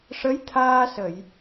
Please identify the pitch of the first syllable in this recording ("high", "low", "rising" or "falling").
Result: rising